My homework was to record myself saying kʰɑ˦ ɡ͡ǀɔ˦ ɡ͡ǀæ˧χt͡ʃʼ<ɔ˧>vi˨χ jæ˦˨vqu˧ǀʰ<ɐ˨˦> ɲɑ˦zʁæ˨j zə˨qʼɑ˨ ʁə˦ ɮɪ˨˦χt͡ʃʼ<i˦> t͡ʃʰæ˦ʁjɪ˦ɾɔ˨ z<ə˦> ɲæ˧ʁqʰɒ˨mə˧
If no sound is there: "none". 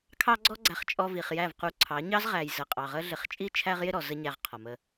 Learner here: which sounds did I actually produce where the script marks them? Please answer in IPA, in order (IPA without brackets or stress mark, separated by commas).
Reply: ɔ˧, ɑ˨˦, i˦, ə˦